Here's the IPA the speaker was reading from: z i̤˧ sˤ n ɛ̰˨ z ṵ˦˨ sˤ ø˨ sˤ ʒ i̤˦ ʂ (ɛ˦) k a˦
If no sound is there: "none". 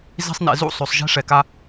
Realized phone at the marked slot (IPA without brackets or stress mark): ɛ˨